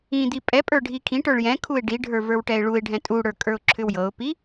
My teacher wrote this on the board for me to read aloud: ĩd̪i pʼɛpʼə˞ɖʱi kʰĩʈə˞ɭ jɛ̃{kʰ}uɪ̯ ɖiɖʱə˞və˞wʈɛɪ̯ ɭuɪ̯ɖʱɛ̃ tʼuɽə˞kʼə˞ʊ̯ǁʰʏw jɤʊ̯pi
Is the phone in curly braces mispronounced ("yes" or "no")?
no